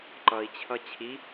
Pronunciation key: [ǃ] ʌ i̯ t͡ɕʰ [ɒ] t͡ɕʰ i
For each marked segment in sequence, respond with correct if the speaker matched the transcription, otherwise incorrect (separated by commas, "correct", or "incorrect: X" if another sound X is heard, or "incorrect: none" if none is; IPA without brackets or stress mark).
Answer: correct, incorrect: ʌ